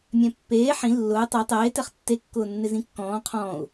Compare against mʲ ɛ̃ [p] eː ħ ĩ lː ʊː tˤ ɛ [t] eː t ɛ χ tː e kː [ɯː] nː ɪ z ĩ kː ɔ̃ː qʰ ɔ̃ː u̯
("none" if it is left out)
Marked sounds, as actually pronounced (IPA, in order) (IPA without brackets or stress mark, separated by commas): pː, tˤ, ʊː